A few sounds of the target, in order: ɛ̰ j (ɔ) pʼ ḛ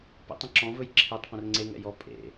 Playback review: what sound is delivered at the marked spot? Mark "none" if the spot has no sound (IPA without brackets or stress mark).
ɔ